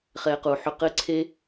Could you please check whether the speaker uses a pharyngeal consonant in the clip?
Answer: yes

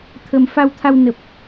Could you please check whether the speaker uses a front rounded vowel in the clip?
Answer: no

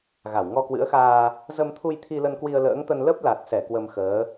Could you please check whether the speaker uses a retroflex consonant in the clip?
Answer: no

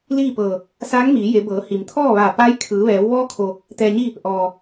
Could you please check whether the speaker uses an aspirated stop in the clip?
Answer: yes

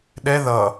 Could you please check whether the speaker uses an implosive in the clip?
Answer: yes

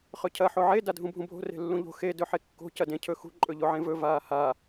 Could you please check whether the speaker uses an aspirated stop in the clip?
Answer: yes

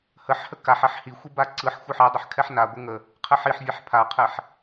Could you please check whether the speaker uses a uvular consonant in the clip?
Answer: yes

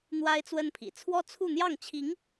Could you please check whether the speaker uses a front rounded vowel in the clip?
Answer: no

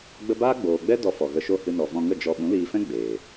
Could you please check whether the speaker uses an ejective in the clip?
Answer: no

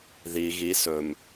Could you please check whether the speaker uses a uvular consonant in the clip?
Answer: no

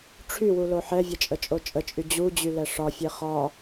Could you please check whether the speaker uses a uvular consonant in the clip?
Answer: yes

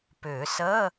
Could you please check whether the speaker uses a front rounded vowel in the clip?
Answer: yes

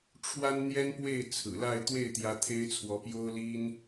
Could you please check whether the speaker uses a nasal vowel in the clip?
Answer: no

